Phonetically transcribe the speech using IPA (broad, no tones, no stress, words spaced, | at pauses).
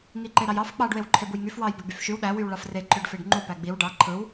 ŋiǃeɾɑjɑf k͡pɑɖ wewǃʰebujŋyf wɑj beɡ͡byfʃyw ɗæ wywɭɑfre ǃøɖfeɖŋ͡ǃu pæɡ͡biw ɖɑ ǃʰɯw